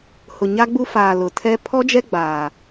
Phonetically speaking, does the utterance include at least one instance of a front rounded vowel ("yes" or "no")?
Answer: no